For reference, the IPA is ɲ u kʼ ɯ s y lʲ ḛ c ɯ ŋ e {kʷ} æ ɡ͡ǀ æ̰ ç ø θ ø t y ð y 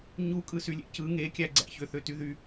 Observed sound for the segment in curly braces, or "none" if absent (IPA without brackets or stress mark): kʲ